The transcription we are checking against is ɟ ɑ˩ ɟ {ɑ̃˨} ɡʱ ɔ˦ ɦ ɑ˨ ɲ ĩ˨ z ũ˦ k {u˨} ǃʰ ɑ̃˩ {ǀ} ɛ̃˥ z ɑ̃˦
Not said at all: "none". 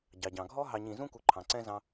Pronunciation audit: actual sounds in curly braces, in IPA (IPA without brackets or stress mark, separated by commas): ɑ̃˩, u˨, ǀ